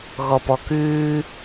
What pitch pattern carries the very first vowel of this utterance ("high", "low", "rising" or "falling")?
low